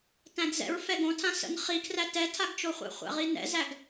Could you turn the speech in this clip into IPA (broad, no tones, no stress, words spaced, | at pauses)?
tæ̃dzɛ̰ɹ fɛɡõtʰã sə̰n χikʰræ tɛtʰaɡt͡ʃoχʷæ̰ χʷæ̰ʁinɛ̰zæɡ